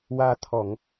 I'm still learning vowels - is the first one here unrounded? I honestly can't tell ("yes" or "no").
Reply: yes